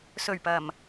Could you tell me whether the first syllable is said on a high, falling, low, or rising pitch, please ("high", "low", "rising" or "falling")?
low